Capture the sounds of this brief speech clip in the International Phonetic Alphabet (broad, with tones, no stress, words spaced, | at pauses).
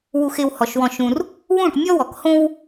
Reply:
wu˧x ɪ˧whɔ˨ʃwɔ̃˧ʃũ˧r | wũ˦˨ʈmʲɔ˦ wɔ˨khõ˦w